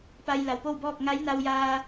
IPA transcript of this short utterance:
pa˧jla˩wpo˥˨wbɔː˥˨k̚ ŋa˧˥jna˧wjaː˧

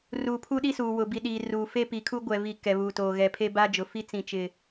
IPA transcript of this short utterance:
ruː˨pʰu˦ɗi˦suː˨ wʊ˨bi˨ ɗi˨ruː˨ fe˦pi˨kʰu˦ ɡʷɛ˨vi˨ kɛ˨βuː˨toː˨ ɣɛ˨pʰe˦ ba˦d͡ʒʊ˨fi˦ t͡sĩ˨t͡ʃɪ˨

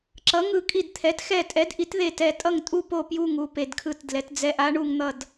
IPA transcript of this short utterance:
ǁʌ˨˥ ŋɯ˦˨kʼi˦˨dt̪ʰɛ˨˥t xɛ˦˨tʼɛ˨˥dʔi˨˥t ðe˦˨tɛ˦˨tʼʌ˦˨ŋ tʼu˦˨po˦˨ pju˦˨ŋ u˦˨pe˦˨dkʰɯ˦˨tdlɛ˨˥t d͡zɛ˨˥ʔa˨˥ɳu˦˨ŋn̪ʌ˦˨d

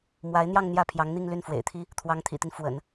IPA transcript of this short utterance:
mwa˧˥ɪ̯n̪jɑ˥˧ŋ n̪jä˥˩pʰjɑ˧˥ŋn̪i˥˧ŋly˥˩n fwḛ˨˩ɪ̯t̪ʰi˥ | t̪ʰwɑ˧˥ŋt̪ʰḭ˨˩t̪i˦n fwə̰˨˩˦n

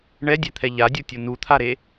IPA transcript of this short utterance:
ɳɛdʲɛt̪ʰɛ ʎadʲutʲo nut̪ʰaɾe

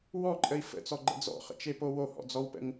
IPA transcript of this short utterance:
wɔǃʼəi̯ fə̰t͡sɔɡ͡ǃə̰ d͡zɔ̰χə̰t͡ʃepo wohɔ̰d͡zɔwpə̰ŋ

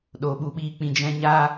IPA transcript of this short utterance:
ɗo˨ɓu˨ɓiː˧ k͡pĩ˧d͡ʒɛ̃˦ ɲaː˦

